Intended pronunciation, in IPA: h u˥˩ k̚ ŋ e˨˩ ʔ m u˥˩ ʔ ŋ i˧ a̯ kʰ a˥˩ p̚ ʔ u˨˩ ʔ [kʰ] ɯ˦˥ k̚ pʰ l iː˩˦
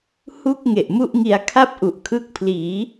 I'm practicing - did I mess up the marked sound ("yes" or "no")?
no